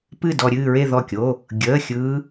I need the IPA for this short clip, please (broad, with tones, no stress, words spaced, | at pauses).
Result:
pɨ˥˧dɔ˧ɾʲɨː˥˧ɹe˥˧ ðɔ˥˩kʲo˧˥˧ | ɡʲəː˧˥˧xʲɯː˦˥